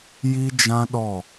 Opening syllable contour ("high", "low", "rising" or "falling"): high